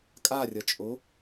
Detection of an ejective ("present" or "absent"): present